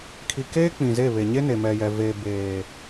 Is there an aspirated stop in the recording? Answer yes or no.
yes